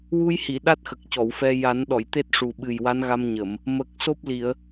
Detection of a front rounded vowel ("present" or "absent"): absent